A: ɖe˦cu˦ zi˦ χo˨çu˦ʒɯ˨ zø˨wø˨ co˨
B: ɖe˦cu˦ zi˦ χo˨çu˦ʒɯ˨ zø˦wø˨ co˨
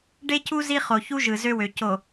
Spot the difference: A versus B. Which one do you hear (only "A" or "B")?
B